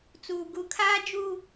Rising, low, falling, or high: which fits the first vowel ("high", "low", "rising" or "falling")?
low